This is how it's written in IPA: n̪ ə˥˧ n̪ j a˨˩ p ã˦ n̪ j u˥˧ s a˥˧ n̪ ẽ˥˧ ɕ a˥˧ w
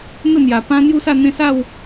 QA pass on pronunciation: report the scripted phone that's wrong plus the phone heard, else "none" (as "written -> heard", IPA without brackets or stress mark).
ɕ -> s